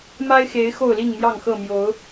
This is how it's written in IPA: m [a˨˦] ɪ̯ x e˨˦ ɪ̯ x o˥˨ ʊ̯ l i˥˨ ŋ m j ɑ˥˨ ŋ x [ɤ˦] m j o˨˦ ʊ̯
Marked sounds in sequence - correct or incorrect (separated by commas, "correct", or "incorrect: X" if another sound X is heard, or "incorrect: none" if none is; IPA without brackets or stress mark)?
incorrect: a˦, incorrect: ɤ˥˨